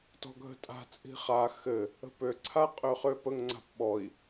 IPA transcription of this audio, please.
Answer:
t ɔ̤ ɡʱ ə̤ tʼ a̤ t͡sʼ i̤ χ a x ɘ | ə̤ p ø ǀʰ a qʼ ø χ ø p ə ŋ ŋ͡ǀ a̤ p ɓ ɔ i̯

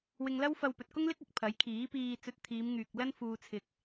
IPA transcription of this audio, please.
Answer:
w ɪ˧ ŋ l ɐ˥ w f ɐ˧ w p ɵ˨ t̚ k ʊ˥ ŋ l ɪ˥ k̚ ɐ˨ k̚ pʰ ɐ˨˥ j kʰ iː˨˥ p iː˧ t͡s ɵ˧ t̚ t̪ʰ iː˨˧ m ŋ yː˨ k̚ l ɐ˥ n f uː˧ t͡sʰ ɪ˧ k̚

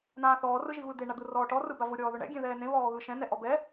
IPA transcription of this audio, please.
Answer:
n̪ ãː θ ɔː r ɯ ʒ i v ɯ d̪ e ɳ a d̪ ɯ r ɔː ʈ ɔ r ɯ b a v ʊ ɾʲ ɔː ð ʊ ɳ ɛ̰ ɡʲ ẽ ð ɛː n ẽ v ɔː ɣ ɯ ʃ ɛ̃ n ɛ ʔ ɔ b ɛ

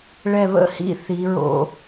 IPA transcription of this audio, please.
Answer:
ɭ ɛ˧˩ β ə̰˥˧ h ḭ˥ θ i˩˧ ɹ o̰˧

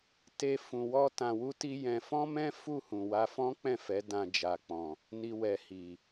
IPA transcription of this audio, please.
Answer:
t e˧ f ũ˧ w ɔ˦ t ã˧ w u˦ t i˦ j ɛ̃˧ f ɔ̃˦ m ɛ̃˦ f u˦˨ h ũ˨ w a˧ f ɔ̃˦ k͡p ɛ̃˦˨ f ɛ˨˦ d ã˧ d͡ʒ a˨ k͡p ɔ̃˨ | n i˧ w ɛ˨ h i˨

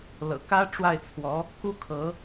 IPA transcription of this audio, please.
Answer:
l ɤ̰˨˩ k ä˥ ʈ͡ʂ w a˥˩ ɪ̯ t͡sʰ w ɔ˧˥ | k u˥ kʰ ɤ˧˥

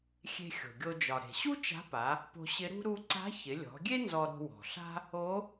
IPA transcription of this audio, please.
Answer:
xʲ e̤˧ xʲ o̤˩ ɡʲ o˧ d͡ʒ ɒ˩ ɾ e̤˩ ɕ u˥ t͡ʃ a̤˧˥ p a˩˧ | p o̤˧ ɕ ɪ˧˥ ɾ ṳ˥ ɾ u˧ ǀ a̤˧˥ ç ɪ˩˧ lʲ ɔ̤˩˧ ɡʲ e˥ n z ɔ˧ ɾ o̤˧ w ɔ̤˩ ɬ a̤˥ | o˧˥

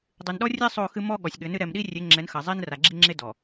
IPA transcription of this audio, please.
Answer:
dˤ ɨ˨ n ɗ ɔ˦ rʲ e˦ sˤ o˦˨ x ɨ˦ m ɔ˦ ɠ ɔ˨ sʲ ɠ ɘ˨˦ n ɨ˦ ɾ ɛ˨ m ɗ i˦ rʲ e˨˦ ŋ͡ǁ ɛ˨˦ n x ɐ˨ zˤ i˦ n r a˨ ɡ͡ǁ i˦ ŋ͡ǁ e˦ d ɔ˨

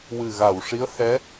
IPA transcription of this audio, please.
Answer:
w ɨ˨˩ ɣ a˨˩˨ w ʂ i˧˥ ə̯ h ɛ˧˥

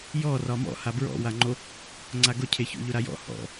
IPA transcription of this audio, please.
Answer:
j ɔ r ɒ m ɔ̰ h a b ɹ ɔ̰ w a ŋ͡ǃ o | ŋ͡ǀ a ɡ ʊ cʰ e ç o̰ ʎ ʊ ɾ a j ɔ̰ h ɔ̰

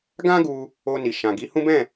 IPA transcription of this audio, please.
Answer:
ɡ ã˦ ɡ u˧ | o˧ n i˨ ʃ ã˨ ɡ i˨˦ h ũ˦ b ɛ̃˦˨

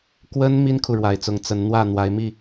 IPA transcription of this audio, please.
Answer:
k w ə˦ n m i˦ n kʰ u˨ ɻ w a˨˩ ɪ̯ t͡s ʊ˨˦ ŋ t͡s ə˨˦ n n̪ w ä˥˨ n̪ w a˨˦ ɪ̯ m i˥˨

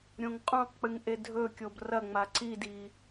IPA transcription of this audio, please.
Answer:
ɾʲ õ ŋ qʼ ũ q k͡p ɨ ŋ ʔ e dʱ ɵ kʲ o b r ɐ ŋ͡m a ǀ i d i

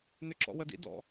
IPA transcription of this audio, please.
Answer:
n ʏ ǁ ɔ̰ w ə d ḭ d ɔ̰

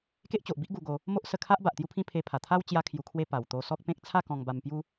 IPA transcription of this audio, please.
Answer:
k e˦ ʔ t͡ɕ o˨ ʔ b i˦ ʔ ɡ u˧ ɡ o˧ | m o˦ ʔ s ə˧ kʰ a˦ ʔ b a˨ ʔ t̪ j u˦ pʰ ĩ˦ pʰ e˧ pʰ a˨˩ t̪ʰ a˦ w t͡ɕ j a˧ kʰ j u˨˩ kʰ w e˧ p a˨˩ w t̪ o˧ s ɔ˦ k̚ p ẽ˦ k̚ t͡sʰ a˥˧ k ɔ̃˧ ŋ b a˧ m p j u˦

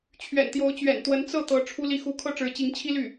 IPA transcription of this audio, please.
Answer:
t͡ɕʰ ɥ ɛ̰˨˩ n t̪ j o˧˥ ʊ̯ t͡ɕ ɥ ɛ̰˨˩ n t̪ w ə˧˥ n t͡s ɤ˥˩ t̪ ɤ˧˥ ʈ͡ʂʰ u˥ l i˥˧ x u˥˩ kʰ ɤ˥ ʈ͡ʂ ɻ̩˧˥ t͡ɕ i˧˥ ŋ t͡ɕʰ i˥ l y˥˩

